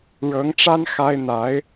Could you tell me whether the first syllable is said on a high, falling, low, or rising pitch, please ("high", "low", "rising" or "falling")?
rising